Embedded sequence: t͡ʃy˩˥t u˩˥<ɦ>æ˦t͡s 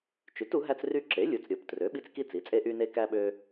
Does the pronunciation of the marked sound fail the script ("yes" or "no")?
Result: no